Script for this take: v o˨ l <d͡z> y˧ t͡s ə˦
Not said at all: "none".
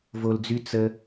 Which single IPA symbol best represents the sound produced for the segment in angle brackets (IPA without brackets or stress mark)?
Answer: d͡z